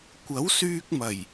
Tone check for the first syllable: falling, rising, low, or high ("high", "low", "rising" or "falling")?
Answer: rising